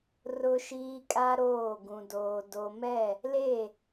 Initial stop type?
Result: ejective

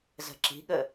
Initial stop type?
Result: click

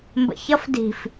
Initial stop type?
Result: plain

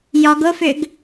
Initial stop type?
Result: plain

